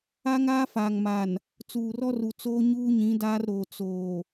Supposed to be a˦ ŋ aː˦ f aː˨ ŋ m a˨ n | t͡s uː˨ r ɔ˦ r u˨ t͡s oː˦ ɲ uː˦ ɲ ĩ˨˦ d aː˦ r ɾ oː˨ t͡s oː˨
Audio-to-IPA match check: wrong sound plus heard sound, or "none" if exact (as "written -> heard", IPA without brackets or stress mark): none